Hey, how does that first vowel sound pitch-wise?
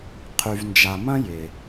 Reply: low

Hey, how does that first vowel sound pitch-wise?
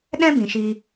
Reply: high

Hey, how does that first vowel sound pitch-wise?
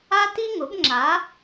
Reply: high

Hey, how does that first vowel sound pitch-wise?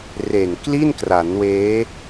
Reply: low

